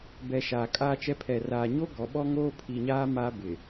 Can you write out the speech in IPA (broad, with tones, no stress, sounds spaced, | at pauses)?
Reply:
b ɛ˨ ʃ aː˨ kʼ aː˦ t͡ʃ ɛ˦ pʰ ɛ˨ r aː˨ ɲ o˦ ɡ ɔ˨ ɓ ɔ˦ ŋ oː˦ pʰ i˨ ɲ aː˦ m a˦ b ɪ˨